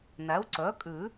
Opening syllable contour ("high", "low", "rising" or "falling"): rising